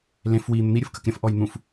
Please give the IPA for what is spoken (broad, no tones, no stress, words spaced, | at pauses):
lẽf wi n̪ən̪i ɾʲɯfkəkɾʲə̃f ʔɔjn̪ũf